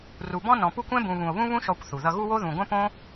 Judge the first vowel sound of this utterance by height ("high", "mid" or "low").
high